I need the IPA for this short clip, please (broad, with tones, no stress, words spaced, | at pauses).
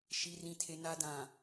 ʃi˨rĩ˨tʰe˨ na˨dã˨